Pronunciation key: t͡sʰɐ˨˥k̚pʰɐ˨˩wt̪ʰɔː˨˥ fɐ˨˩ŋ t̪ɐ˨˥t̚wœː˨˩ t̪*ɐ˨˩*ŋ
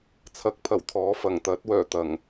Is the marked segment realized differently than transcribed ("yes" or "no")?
no